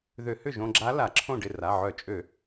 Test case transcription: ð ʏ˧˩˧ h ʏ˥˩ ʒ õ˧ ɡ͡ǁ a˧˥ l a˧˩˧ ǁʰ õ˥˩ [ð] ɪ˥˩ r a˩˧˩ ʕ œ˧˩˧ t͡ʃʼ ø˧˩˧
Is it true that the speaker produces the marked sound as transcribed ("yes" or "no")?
no